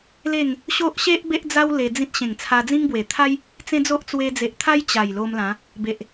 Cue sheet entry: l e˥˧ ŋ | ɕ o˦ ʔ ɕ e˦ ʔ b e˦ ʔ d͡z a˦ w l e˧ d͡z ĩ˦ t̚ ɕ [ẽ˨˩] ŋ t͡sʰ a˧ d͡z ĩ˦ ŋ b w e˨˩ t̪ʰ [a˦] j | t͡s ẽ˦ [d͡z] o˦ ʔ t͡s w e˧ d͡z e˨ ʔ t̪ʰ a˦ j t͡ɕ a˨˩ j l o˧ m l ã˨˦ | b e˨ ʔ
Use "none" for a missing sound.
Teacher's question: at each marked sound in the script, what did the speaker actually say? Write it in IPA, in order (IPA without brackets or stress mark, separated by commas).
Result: ẽ˨˩, a˦, d͡z